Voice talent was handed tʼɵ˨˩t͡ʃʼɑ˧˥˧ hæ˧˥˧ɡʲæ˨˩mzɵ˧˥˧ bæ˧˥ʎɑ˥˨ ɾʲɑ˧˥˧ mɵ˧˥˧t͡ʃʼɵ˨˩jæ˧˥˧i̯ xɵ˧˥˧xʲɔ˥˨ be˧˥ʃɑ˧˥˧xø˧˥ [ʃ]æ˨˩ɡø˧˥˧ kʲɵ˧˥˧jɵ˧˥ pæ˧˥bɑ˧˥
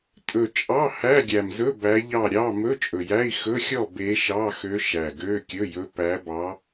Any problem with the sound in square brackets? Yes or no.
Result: no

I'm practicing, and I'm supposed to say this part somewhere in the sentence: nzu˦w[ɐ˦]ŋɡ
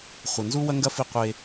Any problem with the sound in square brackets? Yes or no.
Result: no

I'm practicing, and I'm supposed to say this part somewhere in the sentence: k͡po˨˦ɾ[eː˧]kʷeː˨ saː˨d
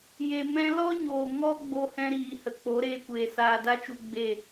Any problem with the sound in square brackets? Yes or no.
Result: no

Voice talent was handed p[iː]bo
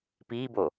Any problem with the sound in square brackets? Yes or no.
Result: no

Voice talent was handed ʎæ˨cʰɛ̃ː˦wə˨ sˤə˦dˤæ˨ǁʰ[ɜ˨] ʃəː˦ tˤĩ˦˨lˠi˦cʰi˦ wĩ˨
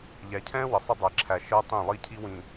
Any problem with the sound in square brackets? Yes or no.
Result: yes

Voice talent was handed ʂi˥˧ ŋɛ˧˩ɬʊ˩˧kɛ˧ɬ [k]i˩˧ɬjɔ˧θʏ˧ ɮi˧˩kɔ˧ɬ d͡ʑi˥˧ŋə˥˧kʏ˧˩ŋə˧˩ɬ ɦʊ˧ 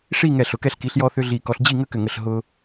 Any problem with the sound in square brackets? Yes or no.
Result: no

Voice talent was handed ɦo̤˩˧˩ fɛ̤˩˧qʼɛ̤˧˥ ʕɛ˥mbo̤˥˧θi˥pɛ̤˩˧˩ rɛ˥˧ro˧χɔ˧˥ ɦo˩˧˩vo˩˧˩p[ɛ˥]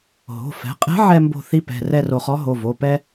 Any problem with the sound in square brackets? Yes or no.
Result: no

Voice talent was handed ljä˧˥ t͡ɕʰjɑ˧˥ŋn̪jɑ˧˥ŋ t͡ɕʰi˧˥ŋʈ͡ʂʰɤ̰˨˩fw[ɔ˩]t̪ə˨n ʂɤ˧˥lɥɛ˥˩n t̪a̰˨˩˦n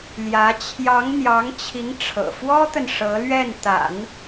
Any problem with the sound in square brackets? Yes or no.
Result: yes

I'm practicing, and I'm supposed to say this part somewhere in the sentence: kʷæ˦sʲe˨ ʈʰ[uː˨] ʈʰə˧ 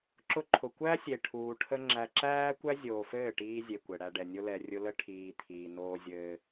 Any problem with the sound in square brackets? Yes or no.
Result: no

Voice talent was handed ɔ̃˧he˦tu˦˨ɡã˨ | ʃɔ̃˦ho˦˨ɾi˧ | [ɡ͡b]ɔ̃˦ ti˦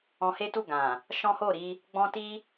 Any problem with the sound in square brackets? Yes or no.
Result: no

